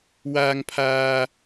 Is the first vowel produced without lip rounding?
yes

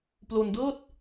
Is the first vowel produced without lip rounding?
no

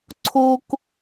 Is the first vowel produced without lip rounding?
no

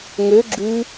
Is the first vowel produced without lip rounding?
no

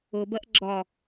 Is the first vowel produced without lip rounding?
no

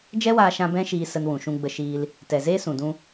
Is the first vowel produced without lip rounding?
yes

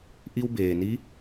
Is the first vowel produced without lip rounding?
yes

